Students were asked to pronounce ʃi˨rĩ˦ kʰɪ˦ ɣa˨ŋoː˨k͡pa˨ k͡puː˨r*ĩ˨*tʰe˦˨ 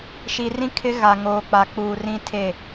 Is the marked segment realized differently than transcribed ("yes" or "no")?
yes